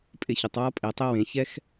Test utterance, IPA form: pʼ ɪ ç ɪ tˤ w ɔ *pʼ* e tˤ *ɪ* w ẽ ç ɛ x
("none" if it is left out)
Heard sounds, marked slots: pʼ, ɪ

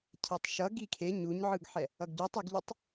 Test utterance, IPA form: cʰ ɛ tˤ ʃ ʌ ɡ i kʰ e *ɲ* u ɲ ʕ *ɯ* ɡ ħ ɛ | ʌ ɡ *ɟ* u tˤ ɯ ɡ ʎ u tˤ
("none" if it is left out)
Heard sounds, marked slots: ɲ, ɯ, ɟ

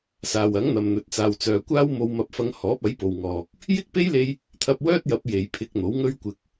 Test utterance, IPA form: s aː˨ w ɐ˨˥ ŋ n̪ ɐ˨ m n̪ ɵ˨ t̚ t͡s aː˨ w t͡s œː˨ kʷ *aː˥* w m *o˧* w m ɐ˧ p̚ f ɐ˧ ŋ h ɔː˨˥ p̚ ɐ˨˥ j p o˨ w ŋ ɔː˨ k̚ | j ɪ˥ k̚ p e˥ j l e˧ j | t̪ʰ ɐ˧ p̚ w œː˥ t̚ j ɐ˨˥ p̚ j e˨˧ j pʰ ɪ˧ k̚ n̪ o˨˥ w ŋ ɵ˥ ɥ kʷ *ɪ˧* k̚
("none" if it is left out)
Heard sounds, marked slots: aː˥, o˧, ɪ˧

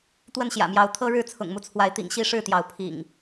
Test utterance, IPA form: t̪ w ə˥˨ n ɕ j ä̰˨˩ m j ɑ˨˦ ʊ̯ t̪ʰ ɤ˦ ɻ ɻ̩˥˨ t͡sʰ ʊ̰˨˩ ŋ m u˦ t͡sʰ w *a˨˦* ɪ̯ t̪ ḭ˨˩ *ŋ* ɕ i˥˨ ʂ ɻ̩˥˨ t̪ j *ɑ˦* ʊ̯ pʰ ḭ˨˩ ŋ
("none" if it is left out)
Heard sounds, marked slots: a˨˦, ŋ, ɑ˨˦

